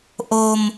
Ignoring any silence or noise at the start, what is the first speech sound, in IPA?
ʔ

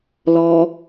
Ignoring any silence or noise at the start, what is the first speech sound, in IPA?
l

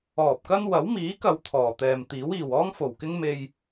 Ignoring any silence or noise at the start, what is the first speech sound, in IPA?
ɔː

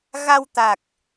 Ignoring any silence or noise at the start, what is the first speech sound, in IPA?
ɣ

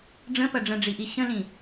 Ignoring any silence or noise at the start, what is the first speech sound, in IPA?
ɖ͡ʐ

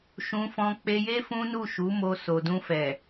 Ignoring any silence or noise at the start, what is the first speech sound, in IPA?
ʃ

